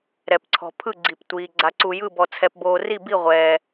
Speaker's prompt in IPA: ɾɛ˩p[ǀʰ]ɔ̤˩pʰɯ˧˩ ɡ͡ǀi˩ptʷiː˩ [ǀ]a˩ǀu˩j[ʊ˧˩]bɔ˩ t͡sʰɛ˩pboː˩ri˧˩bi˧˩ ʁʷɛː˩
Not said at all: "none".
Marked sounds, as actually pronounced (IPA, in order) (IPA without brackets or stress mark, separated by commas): ǀʰ, ɡ͡ǀ, ɯ˧˩